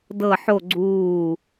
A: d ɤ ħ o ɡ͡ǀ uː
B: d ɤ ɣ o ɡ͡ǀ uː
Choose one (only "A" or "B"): A